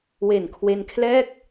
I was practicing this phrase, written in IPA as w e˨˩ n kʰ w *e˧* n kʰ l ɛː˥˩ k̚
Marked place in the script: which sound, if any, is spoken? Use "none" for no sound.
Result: e˧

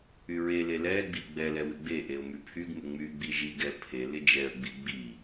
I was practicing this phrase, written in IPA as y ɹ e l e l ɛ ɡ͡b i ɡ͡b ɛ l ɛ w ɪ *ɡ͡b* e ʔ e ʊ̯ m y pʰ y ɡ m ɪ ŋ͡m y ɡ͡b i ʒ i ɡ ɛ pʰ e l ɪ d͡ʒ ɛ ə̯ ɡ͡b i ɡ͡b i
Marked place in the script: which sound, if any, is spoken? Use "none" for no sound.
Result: ɡ͡b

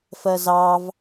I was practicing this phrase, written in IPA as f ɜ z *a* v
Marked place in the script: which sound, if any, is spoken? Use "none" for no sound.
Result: ɑ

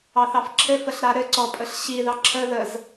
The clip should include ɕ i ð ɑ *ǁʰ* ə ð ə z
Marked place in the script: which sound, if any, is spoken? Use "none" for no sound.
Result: ǁʰ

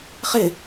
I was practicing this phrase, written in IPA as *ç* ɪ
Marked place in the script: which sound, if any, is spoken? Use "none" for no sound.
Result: χ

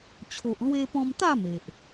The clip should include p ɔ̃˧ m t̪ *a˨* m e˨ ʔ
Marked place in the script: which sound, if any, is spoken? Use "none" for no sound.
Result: a˥˧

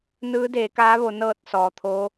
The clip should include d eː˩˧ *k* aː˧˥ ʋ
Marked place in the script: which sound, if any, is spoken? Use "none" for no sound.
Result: k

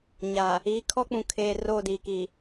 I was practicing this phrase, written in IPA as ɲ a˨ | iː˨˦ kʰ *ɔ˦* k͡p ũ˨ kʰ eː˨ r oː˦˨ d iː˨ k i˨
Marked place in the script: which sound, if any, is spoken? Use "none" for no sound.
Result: ɔ˦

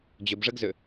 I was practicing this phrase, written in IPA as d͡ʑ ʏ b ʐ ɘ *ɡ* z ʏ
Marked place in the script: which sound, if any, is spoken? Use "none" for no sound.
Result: ɡ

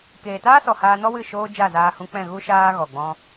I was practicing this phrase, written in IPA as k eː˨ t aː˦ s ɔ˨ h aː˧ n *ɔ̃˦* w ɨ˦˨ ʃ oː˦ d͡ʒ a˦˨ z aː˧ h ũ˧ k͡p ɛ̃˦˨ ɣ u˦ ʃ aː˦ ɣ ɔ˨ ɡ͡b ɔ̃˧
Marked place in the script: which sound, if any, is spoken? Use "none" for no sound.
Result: ɔ˦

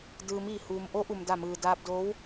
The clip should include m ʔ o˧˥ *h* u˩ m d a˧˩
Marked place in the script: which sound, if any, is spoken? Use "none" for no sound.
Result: ʔ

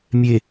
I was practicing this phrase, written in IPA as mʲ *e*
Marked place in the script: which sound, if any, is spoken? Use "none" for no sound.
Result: e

